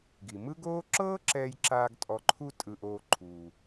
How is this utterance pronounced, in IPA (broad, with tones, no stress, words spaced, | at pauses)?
ɡi˩mɯ˥ɡoː˥ ǁɤː˥ǁɛː˧jǁaː˧ɡ tʼɔ˧ǃʰu˥ tʼɯ˧ʔoː˧ ǃʰuː˩